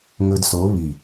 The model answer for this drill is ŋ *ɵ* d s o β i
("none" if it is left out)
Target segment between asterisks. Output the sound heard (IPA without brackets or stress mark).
ɵ